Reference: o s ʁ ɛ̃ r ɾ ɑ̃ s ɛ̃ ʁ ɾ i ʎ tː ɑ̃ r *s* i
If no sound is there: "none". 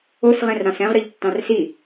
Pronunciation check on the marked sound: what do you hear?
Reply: s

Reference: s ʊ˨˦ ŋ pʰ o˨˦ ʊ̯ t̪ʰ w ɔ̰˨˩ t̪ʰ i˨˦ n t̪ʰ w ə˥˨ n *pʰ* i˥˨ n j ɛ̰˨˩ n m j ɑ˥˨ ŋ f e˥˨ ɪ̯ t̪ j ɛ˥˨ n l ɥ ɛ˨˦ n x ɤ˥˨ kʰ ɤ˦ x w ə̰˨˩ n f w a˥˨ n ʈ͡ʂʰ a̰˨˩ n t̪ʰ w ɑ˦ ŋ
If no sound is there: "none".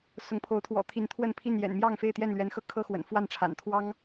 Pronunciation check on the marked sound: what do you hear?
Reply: pʰ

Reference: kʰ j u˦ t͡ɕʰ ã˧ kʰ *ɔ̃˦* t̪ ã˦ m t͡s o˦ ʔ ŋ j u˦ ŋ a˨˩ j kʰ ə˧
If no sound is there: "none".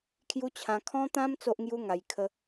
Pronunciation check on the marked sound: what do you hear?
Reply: ɔ̃˦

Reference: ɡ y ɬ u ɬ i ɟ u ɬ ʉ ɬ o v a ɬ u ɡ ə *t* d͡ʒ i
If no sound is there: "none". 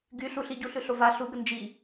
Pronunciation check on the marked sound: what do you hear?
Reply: n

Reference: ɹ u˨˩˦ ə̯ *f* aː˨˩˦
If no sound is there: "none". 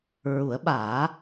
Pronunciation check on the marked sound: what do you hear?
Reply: ɓ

